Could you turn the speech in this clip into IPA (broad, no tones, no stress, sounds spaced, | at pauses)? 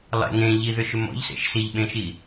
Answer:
lˠ ḛ ŋ ẽ ʎ i ð ʏ ʃ ʏ m ɔ̰ ʎ s ḛ ʃ s i ʎ ɓ ẽ ʃ i